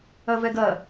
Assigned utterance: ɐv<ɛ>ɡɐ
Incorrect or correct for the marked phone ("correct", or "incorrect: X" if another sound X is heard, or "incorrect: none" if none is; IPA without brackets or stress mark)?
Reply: correct